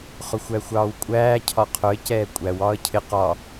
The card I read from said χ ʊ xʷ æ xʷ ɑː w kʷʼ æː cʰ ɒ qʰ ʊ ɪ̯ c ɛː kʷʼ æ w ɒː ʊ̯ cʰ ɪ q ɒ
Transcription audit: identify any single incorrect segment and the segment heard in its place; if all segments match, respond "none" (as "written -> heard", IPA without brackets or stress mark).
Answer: ʊ̯ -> ə̯